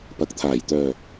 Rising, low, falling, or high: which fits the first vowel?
low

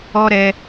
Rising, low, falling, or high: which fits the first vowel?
high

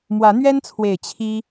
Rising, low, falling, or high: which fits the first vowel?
rising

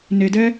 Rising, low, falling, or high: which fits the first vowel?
low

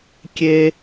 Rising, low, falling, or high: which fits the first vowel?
high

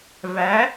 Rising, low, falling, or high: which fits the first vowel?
rising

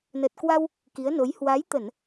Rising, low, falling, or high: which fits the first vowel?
low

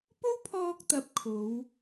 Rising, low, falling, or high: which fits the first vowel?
high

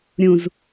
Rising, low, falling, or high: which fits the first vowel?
low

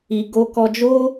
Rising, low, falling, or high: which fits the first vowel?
low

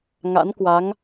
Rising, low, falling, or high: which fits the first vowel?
rising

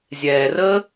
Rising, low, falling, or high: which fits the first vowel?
low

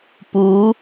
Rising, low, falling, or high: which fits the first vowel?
rising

